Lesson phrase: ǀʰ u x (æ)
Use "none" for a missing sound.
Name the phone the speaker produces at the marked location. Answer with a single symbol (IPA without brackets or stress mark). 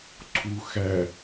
æ